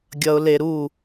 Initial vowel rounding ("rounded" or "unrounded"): unrounded